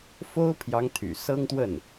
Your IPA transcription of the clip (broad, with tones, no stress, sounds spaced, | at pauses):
f o˥ ʊ̯ pʰ j ɑ˧˥ ŋ t̪ʰ y̰˨˩ s ɤ˥ ŋ t̪ w ə˥˩ n